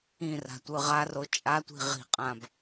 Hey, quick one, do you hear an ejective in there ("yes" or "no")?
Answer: yes